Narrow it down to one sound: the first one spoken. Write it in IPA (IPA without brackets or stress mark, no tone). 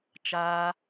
t͡ʃ